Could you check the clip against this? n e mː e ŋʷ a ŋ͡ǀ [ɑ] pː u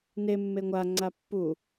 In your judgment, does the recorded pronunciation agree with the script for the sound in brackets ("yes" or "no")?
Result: no